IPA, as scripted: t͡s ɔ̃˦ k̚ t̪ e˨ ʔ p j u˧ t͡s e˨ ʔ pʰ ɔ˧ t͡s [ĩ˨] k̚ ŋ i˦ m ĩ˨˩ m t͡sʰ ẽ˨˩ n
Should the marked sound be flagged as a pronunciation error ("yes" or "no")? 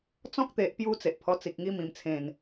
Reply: yes